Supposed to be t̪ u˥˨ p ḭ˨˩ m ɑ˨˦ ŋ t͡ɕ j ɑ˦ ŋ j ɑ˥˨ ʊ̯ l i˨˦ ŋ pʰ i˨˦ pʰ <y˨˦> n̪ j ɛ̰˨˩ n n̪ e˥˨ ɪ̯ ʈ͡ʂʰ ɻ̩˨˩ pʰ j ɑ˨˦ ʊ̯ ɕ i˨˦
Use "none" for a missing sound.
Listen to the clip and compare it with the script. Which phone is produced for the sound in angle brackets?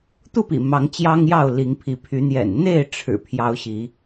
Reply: y˨˦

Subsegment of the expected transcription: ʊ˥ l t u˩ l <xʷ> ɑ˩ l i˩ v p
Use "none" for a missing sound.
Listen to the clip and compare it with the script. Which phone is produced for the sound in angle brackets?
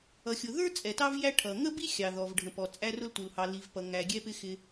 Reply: h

